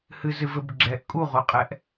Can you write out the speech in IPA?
h ɨ z ɨ v ɘ b ɡ͡ǁ ɛ ʔ kʼ u ʁ o qʼ ɛ ʔ

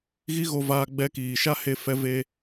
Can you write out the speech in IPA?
ɣ i˦ ɣ o˧ v aː˧ ɡ͡b ɛ˧ k iː˨ ʃ a˦ h e˧ f ɛ˧ v e˧

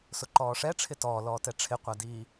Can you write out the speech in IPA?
s ʊ ǃ ɔː ʂ ɛ ʈ͡ʂʰ ɪ t ɔː l ɔː t ɛ ʈ͡ʂʰ ɪ qʷ a d iː

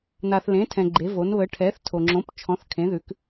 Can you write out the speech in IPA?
n a˨ θ l ẽ˨˦ tʰ ɛ̃˨ ɡ͡ǃ e˨˦ v o˨˦ n β ə˨˦ ʈʰ ɛ˨˦ θ tʰ o˨ ŋ͡ǁ õ˨˦ p t͡ʃʰ ɔ̃˨˦ θ kʰ ẽ˨˦ ð ʉ˨˦ k

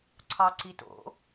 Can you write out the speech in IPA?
ǀʰ ɑ ǀ i t o̰

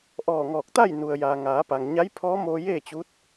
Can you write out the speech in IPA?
ʔ ɔː˧˩ ŋ ɔː˧˩ k̚ t̪ a˥˨ j n u˩ ə̯ j aː˩ ŋ aː˩˧ p a˩ ŋ ɲ a˧˥ j pʰ ɔː˧˥ m oː˧ j eː˥˨ t͡ɕ u˧˥ t̚

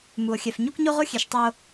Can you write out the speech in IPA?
m u˨ o̯ xʲ ɛ˨ f ɲ u˦ k ɲ o˦ ʁ o˦ xʲ e˨ ʃ tˤ ɛ˦ o̯

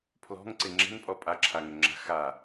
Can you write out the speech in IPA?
pʰ l ɔ̤ ŋ ǀ ɪ ŋ͡ǁ ɛ̤ n pʼ ɔ pʼ a ǁʰ a ŋ ʏ ŋ͡ǁ a̤ x a

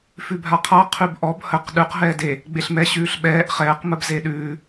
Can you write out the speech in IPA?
f ʉ bʱ a qʰ a qʰ ʉ b ʔ ɔ b h ə q ɗ ʉ q ɦ ɛː d e | ɡ͡b e ɬ m ɛ ɕ ʉː ɬ ɓ ɛː ʔ χ ɛː q m ə b z e ɗ ʉː

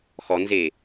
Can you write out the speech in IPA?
x ɔ n z e

